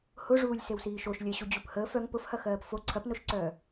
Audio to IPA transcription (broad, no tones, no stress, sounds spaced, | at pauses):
h ʊ ʐ uː lʲ s e w s iː ʃ o ʃ lʲ ɜ ɕ u d͡ʑ u p h əː f œ ŋ p ʊ f h ɐ x ɜː p f o ǀʰ ɐ p n o ʃ ǀ œː